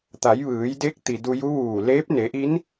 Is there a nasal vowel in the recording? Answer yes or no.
no